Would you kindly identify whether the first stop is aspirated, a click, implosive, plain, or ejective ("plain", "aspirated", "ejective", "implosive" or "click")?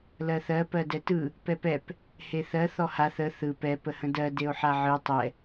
plain